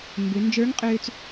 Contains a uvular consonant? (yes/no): yes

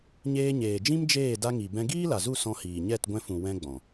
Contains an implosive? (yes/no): no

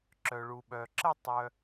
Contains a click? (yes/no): yes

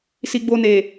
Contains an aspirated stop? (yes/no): no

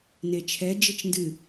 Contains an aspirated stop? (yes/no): yes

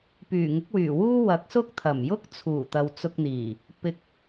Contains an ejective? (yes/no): no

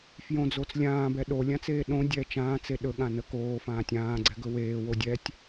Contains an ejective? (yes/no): no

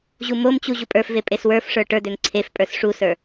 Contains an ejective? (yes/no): yes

